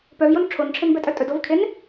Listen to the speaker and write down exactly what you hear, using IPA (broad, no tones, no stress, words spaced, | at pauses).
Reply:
pœvjon ʈ͡ʂʰonʈ͡ʂʰenbɛtʼœ tʼɵd ovkʰen